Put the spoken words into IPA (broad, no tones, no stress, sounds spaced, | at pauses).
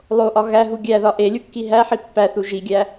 lˠ o ʔ ɒ ɣ æ ɦ u ɡʲ æ ð ɒ ʔ e lʲ u kː i ɦ æ ħ i pː æ θ u ʒ i ɡʲ æ